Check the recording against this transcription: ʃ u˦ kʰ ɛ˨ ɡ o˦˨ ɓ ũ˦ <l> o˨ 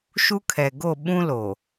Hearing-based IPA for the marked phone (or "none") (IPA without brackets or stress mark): l